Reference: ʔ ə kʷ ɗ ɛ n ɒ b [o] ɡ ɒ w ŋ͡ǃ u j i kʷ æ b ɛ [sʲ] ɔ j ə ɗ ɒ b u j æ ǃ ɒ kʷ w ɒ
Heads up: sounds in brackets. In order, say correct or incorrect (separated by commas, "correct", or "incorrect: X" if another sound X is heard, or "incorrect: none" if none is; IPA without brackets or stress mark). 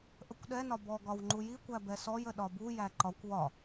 incorrect: ɔ, incorrect: s